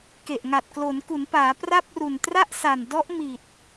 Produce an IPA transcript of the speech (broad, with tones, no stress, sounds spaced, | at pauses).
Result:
k e˨˩ ʔ ŋ a˨˩ t̚ k l o˩˦ n k u˩˦ n p aː˩˦ p r a˥˩ p̚ r u˨˩ n t r a˥˩ ʔ s a˨˩ n d ɔ˦˥ ʔ m i˨˩ t̚